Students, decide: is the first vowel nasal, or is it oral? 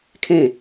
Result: nasal